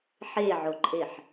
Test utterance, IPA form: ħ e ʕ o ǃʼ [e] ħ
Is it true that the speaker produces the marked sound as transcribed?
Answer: yes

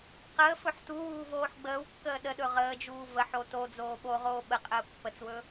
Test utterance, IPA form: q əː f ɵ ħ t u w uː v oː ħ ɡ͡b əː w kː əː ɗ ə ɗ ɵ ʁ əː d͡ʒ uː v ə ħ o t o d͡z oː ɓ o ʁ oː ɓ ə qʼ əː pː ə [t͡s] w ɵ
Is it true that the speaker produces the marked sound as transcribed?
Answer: yes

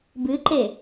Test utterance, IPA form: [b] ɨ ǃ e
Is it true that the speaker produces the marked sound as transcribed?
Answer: yes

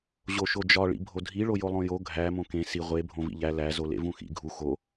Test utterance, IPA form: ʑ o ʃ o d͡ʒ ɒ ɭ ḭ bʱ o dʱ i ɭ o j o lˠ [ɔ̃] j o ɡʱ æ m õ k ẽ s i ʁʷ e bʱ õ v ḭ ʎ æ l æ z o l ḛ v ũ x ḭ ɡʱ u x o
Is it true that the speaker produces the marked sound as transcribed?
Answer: no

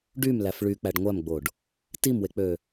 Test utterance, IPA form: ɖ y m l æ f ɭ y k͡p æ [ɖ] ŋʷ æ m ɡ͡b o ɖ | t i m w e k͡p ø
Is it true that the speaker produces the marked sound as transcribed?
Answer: yes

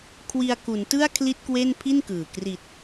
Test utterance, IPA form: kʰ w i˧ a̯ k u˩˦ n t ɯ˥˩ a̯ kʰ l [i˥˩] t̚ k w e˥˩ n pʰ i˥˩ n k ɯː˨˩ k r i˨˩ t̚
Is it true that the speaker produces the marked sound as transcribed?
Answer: yes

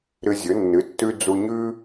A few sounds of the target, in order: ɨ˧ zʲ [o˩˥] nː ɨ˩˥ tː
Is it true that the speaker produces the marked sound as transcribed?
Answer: no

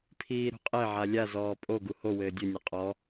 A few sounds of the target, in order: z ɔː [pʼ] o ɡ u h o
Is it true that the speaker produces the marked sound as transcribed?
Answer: yes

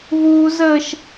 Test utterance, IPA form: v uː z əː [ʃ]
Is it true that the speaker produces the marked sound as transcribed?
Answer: yes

